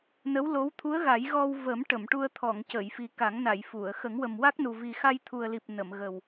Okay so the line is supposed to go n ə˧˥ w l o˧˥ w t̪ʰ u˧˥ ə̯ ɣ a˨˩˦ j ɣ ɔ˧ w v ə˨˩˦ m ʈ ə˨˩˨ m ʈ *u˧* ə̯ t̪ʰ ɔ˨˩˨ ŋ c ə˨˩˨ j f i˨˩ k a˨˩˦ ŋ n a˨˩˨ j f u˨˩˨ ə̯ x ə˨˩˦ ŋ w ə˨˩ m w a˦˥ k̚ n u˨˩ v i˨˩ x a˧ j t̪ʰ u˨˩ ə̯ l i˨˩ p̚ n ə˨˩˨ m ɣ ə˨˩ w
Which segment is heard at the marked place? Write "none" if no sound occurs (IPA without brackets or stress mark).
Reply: u˧